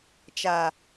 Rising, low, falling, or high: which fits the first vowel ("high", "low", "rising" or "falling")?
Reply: low